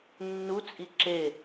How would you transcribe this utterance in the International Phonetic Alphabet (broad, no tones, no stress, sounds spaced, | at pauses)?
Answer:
nː u t͡sʼ i ǁ e